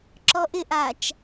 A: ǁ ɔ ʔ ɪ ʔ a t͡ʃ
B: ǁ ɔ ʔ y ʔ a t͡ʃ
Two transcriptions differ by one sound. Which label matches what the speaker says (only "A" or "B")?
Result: A